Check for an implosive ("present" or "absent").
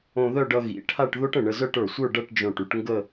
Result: absent